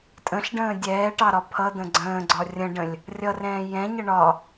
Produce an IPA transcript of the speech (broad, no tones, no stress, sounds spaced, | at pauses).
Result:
tʼ ə̃ ɬ ɖ ə̃ː dʲ ɛː ʈ ɑ ɾ ɒ pʰ ʌ d̪ ə̃ ɡ͡ǀ ə̃ː ɡ͡ǀ ɒ rʲ ə̃ ɖ ə̃ lʲ | rʲ ʌ r ɛ̃ː j ɛ̃ ɲ ə ɳ ɒ